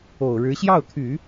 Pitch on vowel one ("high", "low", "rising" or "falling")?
low